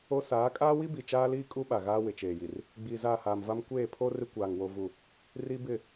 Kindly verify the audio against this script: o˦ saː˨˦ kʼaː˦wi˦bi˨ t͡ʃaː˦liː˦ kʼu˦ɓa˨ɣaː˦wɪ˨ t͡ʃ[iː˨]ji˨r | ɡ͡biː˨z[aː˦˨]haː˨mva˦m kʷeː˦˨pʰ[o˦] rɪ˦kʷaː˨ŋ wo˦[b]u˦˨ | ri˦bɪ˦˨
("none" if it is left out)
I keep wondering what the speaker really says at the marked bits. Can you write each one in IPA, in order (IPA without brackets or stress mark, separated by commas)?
eː˨, aː˦˨, o˦, v